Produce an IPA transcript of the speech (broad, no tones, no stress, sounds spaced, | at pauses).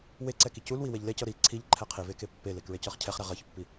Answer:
w e ǀ ɛ k i c u l w i w e ʎ l e c ɤ ɾ i ǀʰ i ʎ ǃʰ ɛ qʰ i v e k e pː e l e k ɹ e c ɤ χ cʰ ɛ χ ɾ ɛ ʁ ɤ ç pː i